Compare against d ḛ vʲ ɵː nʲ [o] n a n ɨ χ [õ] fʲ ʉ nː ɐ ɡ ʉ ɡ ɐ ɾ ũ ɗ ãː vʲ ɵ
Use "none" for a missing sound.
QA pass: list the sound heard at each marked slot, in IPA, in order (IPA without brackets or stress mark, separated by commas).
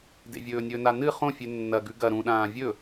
ɵ, õ